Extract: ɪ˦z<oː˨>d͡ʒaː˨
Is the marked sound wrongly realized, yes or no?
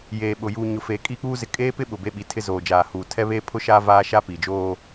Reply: no